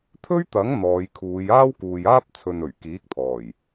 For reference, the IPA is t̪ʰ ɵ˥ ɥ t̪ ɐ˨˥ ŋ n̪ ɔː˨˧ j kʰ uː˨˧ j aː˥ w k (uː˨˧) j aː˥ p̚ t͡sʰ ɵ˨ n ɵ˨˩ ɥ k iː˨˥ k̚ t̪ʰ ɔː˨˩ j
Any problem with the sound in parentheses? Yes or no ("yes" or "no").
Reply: yes